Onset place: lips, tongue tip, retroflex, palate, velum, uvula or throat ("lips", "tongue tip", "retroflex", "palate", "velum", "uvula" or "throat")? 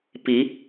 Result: lips